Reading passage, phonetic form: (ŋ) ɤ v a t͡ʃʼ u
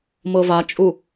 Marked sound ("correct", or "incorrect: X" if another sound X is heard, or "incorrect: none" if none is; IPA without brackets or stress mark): incorrect: m